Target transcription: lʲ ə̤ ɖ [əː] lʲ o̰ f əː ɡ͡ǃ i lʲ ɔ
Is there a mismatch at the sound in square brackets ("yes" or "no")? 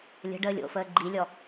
no